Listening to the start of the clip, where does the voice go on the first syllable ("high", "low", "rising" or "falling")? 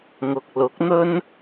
low